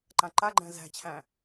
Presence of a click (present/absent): present